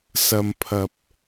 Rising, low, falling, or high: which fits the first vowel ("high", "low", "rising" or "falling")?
low